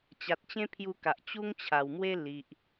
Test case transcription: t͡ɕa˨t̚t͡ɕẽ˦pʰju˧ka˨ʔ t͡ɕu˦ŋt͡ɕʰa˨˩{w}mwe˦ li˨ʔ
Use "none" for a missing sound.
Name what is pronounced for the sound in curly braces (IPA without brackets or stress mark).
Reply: w